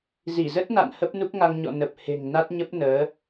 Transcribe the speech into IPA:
z i˧˩ z ə˦˥ t̚ n a̰˧˨ n h ə˦˥ p̚ n u˦˥ k̚ ŋ a˧ ŋ ɲ ɔ̰˧˨ n ə˨˩ p̚ h e̤˨˩ ŋ n a˦˥ t̚ ɲ ə˦˥ p̚ n əː˨˦

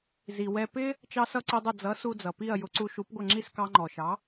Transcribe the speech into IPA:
z i˩ w ɛ˧ p ɪ˥ | t͡ʃ ɑ˧ s ʌ˧ ǀ i˧ dˤ ʊ˥˩ d͡z ʌ˩˥ s u˧ d͡z ʌ˩ p i˥˩ ɐ̯ j ʊ˩˥ ǀ u˧ ʃ u˩˥ p ɡʷ ə˥˩ ŋ͡ǁ i˥˩ s k ɑ˧ ŋ͡ǃ ɔ˩ ʃ ɑ˩˥

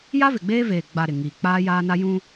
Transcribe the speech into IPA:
j a˦ v ɪ˨ ɡ͡b eː˦ v eː˨ ɡ͡b a˨ ɾ ɪ˨ ŋ iː˨ k͡p aː˦ j aː˦ n a˦ j ũ˦

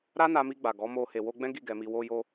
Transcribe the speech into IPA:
ɾ a˦ n a˧ m i˧ ɡ͡b a˨ ɡ ɔ˨˦ m o˧ h e˨ w o˧ ɡ͡b ɛ̃˦ ɡ i˦˨ ɡ ɛ˧ m i˧ w o˦ j o˦

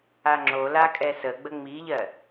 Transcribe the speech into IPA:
a ŋ͡ǁ o l a kʼ ɛ s ə ɡ͡b ə ŋ͡m i ʎ ɜ

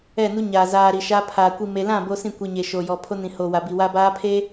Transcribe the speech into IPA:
ɛ˦˨ n u˦ ɲ aː˨ z aː˨ ɾ i˨ ʃ a˦ pʰ aː˨ kʷ i˨ m e˨ l ã˦˨ b o˦ s ĩ˦˨ kʷ i˨ ɲ e˨ ʃ o˨ j ɔ˨ pʰ o˦ n ĩ˨ h o˨ w a˨ b i˨ w a˦ b aː˦ pʰ e˦

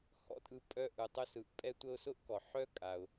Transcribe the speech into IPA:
h ɔ̰˦ tʼ ɯ˨ pʼ œ˦ ʔ ɯ˩ tˤ ʊ˦ s ɯ˩ ʔ pʼ ɛ˦ tʷ ə˦ ʊ̯ s ʊ˥ ʔ k ɔ˩ ħ œ˥ kʼ a˩ ʊ̯

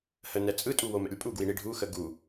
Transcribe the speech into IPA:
h ə n ɛ t͡sʼ ɯ tʼ u w o m ɛ̰ lʲ pʼ u ɡ w i ɳ i ɖʱ u x ə ɡ u

